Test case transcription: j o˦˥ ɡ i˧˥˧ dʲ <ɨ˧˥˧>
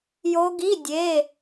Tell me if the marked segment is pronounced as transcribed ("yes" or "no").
no